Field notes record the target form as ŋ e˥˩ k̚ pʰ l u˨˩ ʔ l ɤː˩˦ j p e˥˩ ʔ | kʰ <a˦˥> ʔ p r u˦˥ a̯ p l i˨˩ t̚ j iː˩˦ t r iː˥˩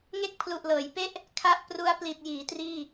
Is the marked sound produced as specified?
yes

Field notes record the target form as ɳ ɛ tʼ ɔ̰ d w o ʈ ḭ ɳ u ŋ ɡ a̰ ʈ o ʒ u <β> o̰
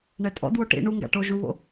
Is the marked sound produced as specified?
yes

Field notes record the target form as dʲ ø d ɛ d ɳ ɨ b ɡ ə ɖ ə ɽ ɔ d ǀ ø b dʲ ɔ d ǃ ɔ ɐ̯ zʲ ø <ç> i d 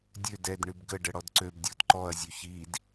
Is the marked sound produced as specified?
yes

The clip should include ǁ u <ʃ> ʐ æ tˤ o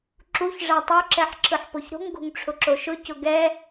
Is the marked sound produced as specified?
no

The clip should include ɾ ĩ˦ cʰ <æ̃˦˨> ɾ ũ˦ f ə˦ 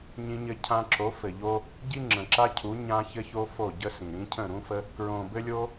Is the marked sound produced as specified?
no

